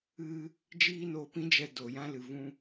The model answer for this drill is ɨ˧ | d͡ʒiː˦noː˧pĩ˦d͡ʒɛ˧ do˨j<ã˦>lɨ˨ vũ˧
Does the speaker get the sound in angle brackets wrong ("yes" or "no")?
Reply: no